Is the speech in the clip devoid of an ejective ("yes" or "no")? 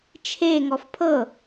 yes